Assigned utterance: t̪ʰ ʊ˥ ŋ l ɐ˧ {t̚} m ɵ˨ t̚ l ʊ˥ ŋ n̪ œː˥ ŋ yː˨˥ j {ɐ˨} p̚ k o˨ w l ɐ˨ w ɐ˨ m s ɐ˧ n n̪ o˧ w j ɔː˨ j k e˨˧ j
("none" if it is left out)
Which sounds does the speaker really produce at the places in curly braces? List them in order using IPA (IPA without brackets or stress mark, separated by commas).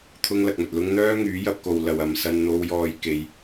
k̚, ɐ˧